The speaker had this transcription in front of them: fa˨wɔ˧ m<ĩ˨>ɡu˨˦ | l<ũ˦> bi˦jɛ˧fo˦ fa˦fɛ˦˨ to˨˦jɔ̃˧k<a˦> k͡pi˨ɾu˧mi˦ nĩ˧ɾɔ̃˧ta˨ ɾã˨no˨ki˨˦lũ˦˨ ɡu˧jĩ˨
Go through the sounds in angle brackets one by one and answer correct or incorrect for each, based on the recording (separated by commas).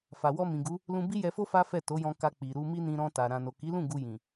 correct, correct, incorrect